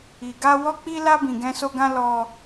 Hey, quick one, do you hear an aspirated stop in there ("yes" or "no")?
no